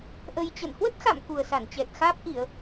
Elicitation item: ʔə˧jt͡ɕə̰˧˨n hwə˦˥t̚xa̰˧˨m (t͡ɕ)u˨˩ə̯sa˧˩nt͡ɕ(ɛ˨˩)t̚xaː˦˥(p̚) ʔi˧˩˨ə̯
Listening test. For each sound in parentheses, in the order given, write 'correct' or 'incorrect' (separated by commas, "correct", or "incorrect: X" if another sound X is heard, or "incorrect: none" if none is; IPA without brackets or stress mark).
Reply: incorrect: k, correct, correct